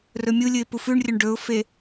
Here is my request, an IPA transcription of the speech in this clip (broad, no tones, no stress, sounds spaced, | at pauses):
r ɵ mʲ u lʲ ɨ ɪ̯ p u f ʉ ɳ rʲ ɵ ɳ ɖ ɵ ʊ̯ f e